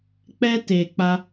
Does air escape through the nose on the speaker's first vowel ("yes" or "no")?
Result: no